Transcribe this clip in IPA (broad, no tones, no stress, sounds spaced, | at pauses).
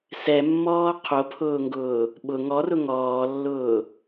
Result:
s ɛ mː ɔː qʰ o pʰ ʊː ŋ ɡ ʊː | ɓ ʊ ŋ ɔ r ʊ ŋ ɔː lː ʊː